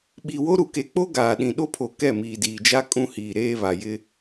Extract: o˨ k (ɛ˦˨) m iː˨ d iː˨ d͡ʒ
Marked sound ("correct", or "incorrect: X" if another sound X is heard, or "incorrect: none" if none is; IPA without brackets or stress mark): correct